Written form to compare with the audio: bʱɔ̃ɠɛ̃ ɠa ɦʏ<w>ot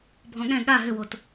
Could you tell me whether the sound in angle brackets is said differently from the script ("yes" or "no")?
no